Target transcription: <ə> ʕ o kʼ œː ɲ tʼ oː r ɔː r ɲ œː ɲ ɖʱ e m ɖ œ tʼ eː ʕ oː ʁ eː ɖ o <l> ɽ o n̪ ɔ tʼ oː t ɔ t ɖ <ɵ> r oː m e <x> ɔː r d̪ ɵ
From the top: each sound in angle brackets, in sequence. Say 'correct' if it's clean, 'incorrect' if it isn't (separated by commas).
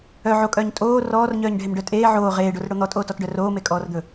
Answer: incorrect, incorrect, incorrect, incorrect